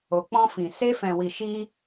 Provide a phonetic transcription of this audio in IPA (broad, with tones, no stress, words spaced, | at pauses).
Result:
o˨k͡pɔ̃˧fĩ˨ se˧fɛ̃˨wi˨ʃi˧